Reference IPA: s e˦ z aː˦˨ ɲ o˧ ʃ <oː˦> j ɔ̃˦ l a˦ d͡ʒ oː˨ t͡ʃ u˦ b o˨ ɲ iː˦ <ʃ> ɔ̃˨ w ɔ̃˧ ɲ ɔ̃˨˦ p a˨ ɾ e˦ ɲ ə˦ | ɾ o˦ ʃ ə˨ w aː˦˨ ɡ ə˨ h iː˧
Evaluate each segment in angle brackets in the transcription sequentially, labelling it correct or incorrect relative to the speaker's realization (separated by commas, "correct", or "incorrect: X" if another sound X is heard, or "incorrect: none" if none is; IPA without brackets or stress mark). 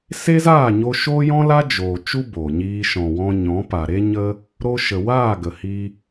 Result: correct, correct